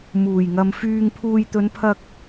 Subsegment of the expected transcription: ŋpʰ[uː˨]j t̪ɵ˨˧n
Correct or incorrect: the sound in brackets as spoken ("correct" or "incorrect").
correct